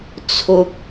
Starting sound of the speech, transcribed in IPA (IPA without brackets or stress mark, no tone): t͡sʰ